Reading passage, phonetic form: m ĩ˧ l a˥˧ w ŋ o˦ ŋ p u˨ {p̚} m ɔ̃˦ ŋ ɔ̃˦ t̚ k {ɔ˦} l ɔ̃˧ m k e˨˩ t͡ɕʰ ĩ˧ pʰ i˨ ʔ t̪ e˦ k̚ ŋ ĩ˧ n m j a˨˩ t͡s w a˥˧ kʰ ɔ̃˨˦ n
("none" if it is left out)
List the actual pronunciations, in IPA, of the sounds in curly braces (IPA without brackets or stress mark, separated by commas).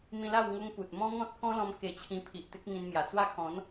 t̚, ɔ̃˦